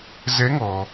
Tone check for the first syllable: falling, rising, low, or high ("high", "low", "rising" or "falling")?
rising